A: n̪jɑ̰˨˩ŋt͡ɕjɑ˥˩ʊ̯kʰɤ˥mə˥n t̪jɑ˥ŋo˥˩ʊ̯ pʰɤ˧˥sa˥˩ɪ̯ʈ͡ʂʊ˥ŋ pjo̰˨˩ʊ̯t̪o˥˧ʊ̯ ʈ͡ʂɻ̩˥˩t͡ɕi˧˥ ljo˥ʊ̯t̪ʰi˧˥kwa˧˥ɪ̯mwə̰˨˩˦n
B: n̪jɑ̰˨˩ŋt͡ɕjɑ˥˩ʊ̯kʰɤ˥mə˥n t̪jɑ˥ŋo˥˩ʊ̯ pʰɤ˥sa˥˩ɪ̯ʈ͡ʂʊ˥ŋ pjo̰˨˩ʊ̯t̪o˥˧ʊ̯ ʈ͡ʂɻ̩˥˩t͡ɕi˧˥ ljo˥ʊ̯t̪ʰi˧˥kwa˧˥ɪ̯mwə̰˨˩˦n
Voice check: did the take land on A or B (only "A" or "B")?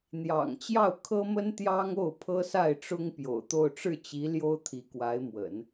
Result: B